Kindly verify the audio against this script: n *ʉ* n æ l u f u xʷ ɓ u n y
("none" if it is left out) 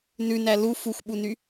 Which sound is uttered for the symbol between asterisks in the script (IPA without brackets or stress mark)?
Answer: ʉ